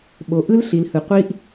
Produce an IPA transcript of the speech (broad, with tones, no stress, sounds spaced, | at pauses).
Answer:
ɓ o˨ ʔ ɯ˦ l ɬ i˨ l h ɯ˨ qʷ i˦ ʔ